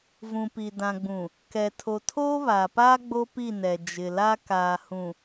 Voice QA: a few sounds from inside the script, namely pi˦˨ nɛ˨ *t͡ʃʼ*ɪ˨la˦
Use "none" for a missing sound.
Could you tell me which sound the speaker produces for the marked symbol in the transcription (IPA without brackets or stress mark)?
d͡ʒ